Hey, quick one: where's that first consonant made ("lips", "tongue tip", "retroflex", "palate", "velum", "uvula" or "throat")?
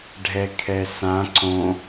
retroflex